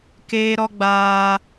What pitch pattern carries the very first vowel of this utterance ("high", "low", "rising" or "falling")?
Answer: high